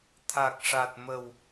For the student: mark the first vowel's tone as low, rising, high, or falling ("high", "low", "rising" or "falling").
low